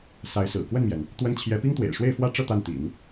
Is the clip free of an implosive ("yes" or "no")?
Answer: yes